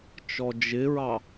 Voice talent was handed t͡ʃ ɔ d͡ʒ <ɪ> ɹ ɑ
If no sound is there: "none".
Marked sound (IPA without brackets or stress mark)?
ɪ